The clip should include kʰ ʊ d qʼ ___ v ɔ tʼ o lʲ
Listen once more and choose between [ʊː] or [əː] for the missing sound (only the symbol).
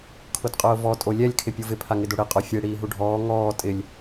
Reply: ʊː